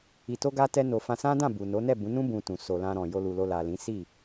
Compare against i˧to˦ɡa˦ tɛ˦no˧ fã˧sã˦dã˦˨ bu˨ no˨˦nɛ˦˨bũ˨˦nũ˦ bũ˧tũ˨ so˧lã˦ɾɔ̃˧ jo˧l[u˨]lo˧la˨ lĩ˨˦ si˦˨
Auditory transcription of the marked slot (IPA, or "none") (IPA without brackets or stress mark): u˨